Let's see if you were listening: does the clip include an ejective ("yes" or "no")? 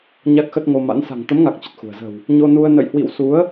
no